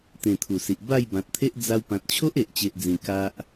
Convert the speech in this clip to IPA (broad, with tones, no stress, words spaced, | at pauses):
t̪ẽ˨˩ t̪ʰu˨˩si˨ʔ ba˥˧jbã˨t̚t̪ʰe˦ʔ d͡za˧w pã˨t̚t͡ɕʰo˦ʔe˨ʔt͡ɕe˨ʔ d͡zĩ˨˩ ka˦ʔ